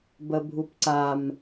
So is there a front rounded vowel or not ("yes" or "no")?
no